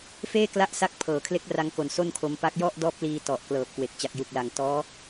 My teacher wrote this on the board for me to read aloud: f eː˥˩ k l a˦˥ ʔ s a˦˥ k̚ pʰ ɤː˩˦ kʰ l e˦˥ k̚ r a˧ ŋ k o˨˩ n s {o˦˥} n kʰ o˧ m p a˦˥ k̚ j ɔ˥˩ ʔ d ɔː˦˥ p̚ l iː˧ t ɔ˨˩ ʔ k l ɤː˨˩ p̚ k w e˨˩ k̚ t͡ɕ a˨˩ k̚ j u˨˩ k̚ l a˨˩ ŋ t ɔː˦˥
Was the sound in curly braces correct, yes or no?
no